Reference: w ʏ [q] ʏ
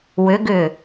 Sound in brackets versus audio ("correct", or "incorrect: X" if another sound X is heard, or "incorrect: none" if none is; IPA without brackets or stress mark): incorrect: ɡ